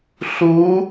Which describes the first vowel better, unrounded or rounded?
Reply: rounded